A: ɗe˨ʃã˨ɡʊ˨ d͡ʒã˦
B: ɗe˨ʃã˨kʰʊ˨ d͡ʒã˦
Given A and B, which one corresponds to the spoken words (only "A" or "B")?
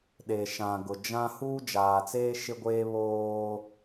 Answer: A